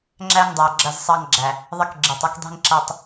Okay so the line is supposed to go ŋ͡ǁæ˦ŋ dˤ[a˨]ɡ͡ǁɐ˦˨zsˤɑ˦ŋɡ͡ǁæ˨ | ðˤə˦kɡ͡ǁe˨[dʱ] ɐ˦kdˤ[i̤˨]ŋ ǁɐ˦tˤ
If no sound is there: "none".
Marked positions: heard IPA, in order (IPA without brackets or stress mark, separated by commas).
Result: æ˨, tˤ, i̤˦